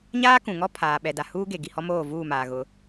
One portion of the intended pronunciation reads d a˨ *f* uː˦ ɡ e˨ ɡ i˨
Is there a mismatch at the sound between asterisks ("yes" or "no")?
yes